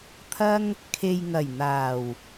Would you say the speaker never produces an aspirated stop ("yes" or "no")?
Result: no